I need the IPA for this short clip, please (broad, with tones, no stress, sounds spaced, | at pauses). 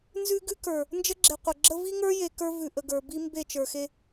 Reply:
n z ʉ˦ ɡ ʉ˦ k ə˞˨ | n d͡ʒ ə˦ ɡ͡ǁ e˨ qʷ ə˨ ɡ͡ǁ ə˦ v i˦ ŋ ə˞˦ j e˨ k ə˞˦ v ʉ˨ ʔ ə˨ ɡ ə˞˨ b i˦ m b e˦˨ t͡ʃ ə˞˨ x e˦